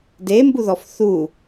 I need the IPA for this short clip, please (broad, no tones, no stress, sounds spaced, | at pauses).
d e m b u ð ɔ f θ u